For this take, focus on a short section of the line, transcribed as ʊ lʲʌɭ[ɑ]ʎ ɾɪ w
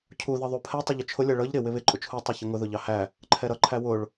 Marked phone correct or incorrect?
incorrect: ʌ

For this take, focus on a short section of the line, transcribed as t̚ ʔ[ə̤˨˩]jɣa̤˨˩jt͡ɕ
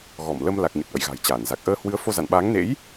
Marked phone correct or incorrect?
incorrect: ə̰˧˨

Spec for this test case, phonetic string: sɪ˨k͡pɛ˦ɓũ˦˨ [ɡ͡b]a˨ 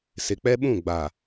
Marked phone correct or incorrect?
correct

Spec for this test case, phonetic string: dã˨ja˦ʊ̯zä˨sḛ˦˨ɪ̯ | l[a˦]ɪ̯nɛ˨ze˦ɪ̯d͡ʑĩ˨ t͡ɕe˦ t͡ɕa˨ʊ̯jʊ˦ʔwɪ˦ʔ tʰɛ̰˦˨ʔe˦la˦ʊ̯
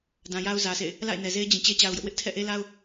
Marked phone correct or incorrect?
incorrect: a̰˦˨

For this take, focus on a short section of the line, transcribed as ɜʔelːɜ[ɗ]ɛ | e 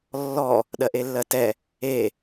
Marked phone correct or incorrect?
incorrect: t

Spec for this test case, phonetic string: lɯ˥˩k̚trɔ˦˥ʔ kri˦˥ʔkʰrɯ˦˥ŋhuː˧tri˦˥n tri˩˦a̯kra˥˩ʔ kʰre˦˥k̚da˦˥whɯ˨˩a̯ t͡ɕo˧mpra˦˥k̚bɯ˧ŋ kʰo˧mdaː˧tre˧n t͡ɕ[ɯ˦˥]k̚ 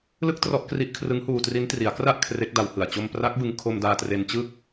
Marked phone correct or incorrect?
correct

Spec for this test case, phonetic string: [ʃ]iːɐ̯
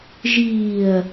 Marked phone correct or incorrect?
incorrect: ʒ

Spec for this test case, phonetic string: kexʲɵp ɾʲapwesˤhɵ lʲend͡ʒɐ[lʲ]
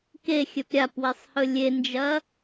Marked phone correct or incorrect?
incorrect: none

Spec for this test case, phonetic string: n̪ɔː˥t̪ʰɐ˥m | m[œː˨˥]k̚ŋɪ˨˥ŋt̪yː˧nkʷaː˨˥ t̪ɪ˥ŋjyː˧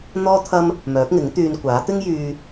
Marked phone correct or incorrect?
correct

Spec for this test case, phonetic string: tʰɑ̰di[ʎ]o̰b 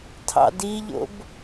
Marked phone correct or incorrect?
correct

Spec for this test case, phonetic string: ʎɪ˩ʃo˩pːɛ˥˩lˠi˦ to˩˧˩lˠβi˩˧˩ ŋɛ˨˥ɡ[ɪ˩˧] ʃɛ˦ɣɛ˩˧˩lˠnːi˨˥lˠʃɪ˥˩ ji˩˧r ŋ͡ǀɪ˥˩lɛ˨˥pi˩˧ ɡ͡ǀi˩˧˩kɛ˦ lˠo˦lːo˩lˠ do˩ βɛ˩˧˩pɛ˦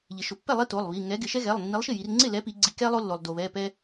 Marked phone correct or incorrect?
correct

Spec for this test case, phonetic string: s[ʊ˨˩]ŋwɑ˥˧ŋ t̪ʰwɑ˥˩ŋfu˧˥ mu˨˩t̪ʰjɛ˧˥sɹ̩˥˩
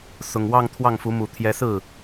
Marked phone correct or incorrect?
correct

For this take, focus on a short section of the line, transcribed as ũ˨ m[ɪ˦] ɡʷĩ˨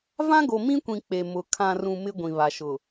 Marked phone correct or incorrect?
correct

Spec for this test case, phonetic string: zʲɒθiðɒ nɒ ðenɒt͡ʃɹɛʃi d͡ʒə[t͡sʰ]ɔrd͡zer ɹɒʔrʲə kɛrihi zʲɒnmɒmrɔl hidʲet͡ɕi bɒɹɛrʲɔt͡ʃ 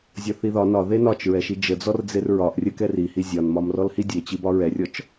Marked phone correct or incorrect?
incorrect: d͡z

